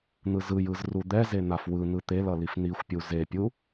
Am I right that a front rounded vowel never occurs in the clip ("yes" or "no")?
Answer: yes